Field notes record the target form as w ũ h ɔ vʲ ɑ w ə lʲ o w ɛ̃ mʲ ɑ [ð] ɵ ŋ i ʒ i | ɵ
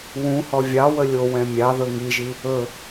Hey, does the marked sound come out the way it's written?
yes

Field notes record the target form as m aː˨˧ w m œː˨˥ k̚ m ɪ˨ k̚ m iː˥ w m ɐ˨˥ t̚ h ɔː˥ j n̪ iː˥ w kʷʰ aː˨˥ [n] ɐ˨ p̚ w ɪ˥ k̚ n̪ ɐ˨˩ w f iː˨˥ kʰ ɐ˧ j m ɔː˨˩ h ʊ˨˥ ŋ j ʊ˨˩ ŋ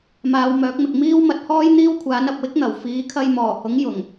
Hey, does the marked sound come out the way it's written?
yes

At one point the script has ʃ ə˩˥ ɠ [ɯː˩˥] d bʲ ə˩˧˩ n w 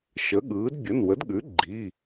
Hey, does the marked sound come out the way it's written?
yes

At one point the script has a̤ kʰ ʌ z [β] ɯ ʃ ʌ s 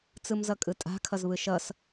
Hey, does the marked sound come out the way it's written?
yes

